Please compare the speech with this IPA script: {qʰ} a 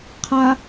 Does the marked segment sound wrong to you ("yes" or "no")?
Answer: no